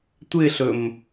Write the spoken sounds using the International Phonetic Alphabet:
tʷɪɬɵm

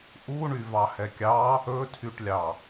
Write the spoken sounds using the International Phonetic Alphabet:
ʔuɳyvɑ hɛkʲɑ | ɵtʰyʈlʲɑ

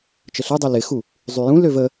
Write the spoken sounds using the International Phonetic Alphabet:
t͡ʃəɬødˤu lɪxu | zˤyjũløv ə

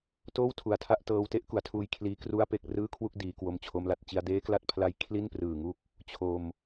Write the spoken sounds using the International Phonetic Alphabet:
toː˥˩wtʰu˨˩a̯tʰa˥˩ʔ tɤː˧w te˦˥ʔku˩˦a̯tʰuː˧j kʰliː˦˥ kru˥˩a̯pe˥˩k̚ rɯː˥˩kʰwu˥˩k̚ diː˧ kwo˧mt͡ɕʰo˧mla˨˩t̚ t͡ɕi˧a̯deː˦˥kla˦˥t̚pʰla˦˥j kʰli˥˩nprɯː˨˩ŋu˦˥k̚ | t͡ɕʰo˧m

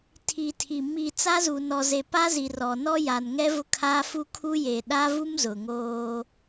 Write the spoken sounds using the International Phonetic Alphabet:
tʰi˨tʰi˨ mi˨ t͡sa˦zu˨ nɔ˨ze˨ pa˦zi˨ rɔ˨ nɔ˦ja˨nŋɛ˦vʊ˦ kʰaː˦fu˦kʰu˦ je˨ɗa˦vu˦mzʊ˨ ŋoː˦

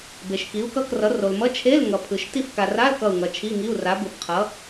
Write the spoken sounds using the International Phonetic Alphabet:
be˨ʃki˨˥u̯kʌ˧˥˧krʌ˨˥ ro˨l mʌ˧˥˧t͡ʃʰe˧˥˧l ŋʌ˨pʰɯ˨ʃ ti˦˨fka˨ra˧˥˧l kʌ˦˨u̯ŋʌ˨t͡ʃʰi˧˥˧ŋi˧˥˧u̯ ra˨˥bɯ˨bqʰʌ˨˥

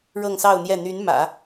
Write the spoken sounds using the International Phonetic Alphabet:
ɻɤ˥˧ŋsɑ˥˧ʊ̯n̪jɛ˥˩ n̪y˧˥nmä̰˨˩˦

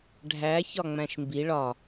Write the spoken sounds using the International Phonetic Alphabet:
ɖʱæ çɒŋ͡mæ̃ʃmbi ɭɒ

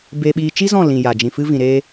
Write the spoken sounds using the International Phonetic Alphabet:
beː˧ɓiː˧ t͡ʃi˦zɔ̃˦˨lĩ˨ ja˨ d͡ʒĩ˨ fɨ˧vĩ˨ɾeː˧

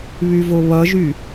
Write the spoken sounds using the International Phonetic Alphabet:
βyvoβʌʒy

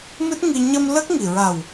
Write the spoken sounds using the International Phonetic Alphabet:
mɨ˦˥t̚ŋi˧ ɲə˧m lə˦˥k̚ŋi˨˩ ɹa˨˩w

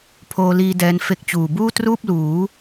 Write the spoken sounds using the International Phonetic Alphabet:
pʰoː˧liː˧ dɛː˦˥n fe˦˥k̚ t͡ɕuː˨˩ buː˥˩truː˥˩p̚luː˩˦

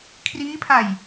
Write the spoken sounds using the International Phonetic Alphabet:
kʰriː˦˥pʰa˨˩j

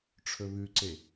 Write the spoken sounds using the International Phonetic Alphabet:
ʈ͡ʂʰɵβʉǀe

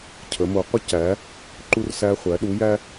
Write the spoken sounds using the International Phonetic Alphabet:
cʰə˩˧mo˩˧ qʷə˧cæ˩˧ | ǃu˧rsæ˧χʷæ˩˧ ɗu˩˧jæ˧

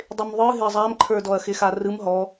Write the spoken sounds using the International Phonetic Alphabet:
dˤɪmðˤɯ ɦɪɐ̯zˤamǃʰə˞ dɔɐ̯xɪxarɯm ɦɔ

